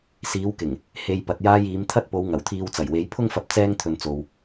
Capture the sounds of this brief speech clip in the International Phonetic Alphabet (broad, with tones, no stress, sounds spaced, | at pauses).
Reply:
s iː˨˧ w k ɪ˨˩ ŋ | h e˨ j p ɐ˨ t̚ j aː˧ j iː˨˧ m t̪ʰ ɐ˥ t̚ p o˨˧ w ŋ ɐ˨˩ w t̪ʰ iː˧ w t͡s ɐ˨˩ j w e˨˧ j pʰ ʊ˥ ŋ f ɐ˧ p̚ t͡s ɛː˧ ŋ t̪ʰ ɵ˨ n t͡s o˨ w